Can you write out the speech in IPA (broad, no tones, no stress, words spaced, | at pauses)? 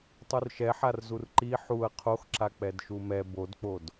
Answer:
tˤurʃɛħar zurǃi ħuɐ̯ qʰoxǁa k͡pɛdʃumɛ bodk͡pod